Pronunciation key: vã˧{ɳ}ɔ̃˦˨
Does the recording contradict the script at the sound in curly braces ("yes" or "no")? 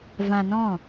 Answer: yes